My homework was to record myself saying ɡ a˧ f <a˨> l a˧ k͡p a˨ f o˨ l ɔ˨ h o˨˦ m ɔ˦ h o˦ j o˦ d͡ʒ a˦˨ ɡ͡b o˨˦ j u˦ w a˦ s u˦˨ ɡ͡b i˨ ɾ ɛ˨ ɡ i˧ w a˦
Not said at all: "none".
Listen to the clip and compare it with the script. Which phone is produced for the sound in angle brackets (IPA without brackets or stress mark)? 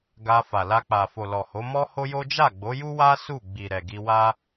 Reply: a˨